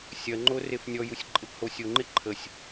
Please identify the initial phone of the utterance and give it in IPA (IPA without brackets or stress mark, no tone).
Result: sʲ